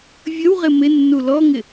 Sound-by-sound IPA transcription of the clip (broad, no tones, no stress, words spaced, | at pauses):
vʲəwʁɪ mɪnːu lɔŋɪ